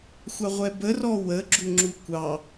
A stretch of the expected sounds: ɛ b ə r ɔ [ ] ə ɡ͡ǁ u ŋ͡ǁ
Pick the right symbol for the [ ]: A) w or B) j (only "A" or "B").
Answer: A